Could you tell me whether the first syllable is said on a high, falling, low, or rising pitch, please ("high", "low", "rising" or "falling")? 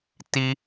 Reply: high